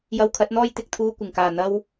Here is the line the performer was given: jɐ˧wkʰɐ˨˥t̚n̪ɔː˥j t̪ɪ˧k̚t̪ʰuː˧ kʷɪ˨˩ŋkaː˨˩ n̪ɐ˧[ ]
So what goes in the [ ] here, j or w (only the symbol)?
w